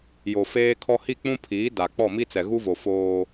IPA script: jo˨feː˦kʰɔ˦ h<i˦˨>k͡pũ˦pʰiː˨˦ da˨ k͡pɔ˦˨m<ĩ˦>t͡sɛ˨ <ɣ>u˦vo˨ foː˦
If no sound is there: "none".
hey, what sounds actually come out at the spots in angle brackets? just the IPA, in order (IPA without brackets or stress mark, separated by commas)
i˦˨, i˦, ɣ